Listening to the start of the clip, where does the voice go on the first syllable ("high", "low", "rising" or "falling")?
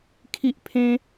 high